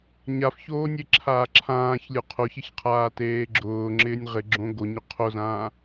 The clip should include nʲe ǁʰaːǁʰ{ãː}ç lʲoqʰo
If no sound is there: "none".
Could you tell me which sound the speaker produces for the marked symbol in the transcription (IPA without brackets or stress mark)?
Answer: ãː